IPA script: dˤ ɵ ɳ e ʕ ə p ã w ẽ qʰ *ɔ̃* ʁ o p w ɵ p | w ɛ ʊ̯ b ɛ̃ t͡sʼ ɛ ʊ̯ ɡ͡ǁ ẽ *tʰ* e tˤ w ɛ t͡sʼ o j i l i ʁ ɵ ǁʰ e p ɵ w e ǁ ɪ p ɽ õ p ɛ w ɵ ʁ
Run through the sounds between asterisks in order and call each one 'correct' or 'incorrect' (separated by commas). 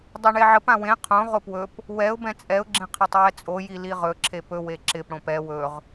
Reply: incorrect, incorrect